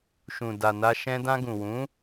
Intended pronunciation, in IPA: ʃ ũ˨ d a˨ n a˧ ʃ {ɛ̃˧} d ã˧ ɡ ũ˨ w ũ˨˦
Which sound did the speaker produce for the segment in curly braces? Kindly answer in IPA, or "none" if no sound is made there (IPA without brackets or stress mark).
ɛ̃˧